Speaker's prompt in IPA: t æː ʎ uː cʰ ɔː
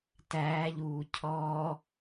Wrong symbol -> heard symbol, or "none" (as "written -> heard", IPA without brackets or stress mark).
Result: none